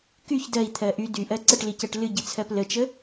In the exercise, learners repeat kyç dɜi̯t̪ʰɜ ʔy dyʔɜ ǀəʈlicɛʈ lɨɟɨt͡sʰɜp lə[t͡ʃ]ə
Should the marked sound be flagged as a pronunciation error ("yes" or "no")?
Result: no